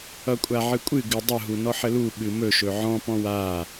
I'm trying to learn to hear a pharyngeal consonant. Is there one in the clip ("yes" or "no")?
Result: yes